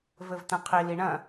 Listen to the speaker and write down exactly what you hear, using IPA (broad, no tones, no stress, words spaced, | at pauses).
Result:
vɘvt̪ɐ̃qʰi liɳɐ̃